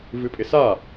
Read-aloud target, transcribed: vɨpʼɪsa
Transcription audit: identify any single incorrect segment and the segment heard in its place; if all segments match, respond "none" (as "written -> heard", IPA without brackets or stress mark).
none